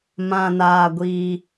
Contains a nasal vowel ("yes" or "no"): yes